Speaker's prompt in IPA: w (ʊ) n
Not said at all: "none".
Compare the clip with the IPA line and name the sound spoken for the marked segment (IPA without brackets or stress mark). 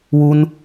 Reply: u